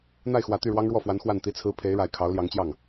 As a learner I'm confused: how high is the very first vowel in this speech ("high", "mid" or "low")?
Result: low